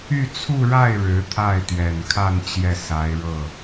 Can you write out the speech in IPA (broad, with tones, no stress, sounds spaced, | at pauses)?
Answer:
y˥˧ t͡sʰ u˥˧ ɻ a˥˩ ɪ̯ ɻ ɻ̩˧˥ t̪ʰ a˥˩ ɪ̯ t̪ ɥ ɛ˨˩ n kʰ a˥˧ n t͡ɕ j ɛ˥˩ s a˧˥ ɪ̯ ɻ ɤ˥˩